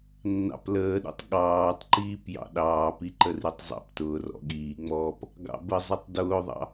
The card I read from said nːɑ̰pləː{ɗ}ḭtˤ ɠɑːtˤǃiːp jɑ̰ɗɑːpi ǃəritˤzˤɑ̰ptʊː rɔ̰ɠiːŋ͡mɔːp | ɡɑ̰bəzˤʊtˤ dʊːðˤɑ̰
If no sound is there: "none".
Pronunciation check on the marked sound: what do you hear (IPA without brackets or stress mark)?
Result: ɗ